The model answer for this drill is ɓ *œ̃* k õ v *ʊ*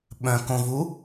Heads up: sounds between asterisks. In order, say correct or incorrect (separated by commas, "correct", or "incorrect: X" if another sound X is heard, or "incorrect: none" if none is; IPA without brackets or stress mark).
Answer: correct, incorrect: u